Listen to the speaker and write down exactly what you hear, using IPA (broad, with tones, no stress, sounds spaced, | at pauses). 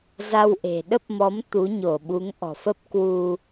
z a˧ w ʔ e̤˨˩ ɗ ə˦˥ p̚ m ɔ˨˦ m t̪ u˨˦ ɲ o˧˩ ɓ u˨˦ ŋ ʔ ɔ̤˨˩ f ə˦˥ p̚ k w u˧